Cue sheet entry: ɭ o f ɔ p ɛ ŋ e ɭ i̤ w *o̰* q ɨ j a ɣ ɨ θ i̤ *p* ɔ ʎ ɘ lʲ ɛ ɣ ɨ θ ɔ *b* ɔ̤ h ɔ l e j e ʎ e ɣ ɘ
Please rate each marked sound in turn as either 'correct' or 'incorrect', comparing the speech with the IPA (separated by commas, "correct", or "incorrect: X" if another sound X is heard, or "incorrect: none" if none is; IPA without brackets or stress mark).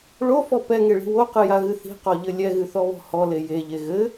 incorrect: o, incorrect: q, incorrect: β